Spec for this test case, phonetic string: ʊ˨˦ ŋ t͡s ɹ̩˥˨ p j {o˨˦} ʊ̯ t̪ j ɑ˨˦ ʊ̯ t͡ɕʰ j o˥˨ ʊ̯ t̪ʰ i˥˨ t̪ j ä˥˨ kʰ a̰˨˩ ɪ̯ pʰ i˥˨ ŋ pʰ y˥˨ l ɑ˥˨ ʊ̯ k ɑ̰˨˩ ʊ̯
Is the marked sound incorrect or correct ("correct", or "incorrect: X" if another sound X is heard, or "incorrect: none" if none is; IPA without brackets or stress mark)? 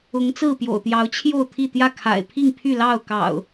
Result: incorrect: o̰˨˩